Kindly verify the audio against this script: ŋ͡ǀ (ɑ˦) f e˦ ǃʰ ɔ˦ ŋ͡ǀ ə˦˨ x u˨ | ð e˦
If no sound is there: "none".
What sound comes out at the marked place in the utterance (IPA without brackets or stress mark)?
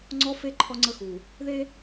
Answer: ɔ˦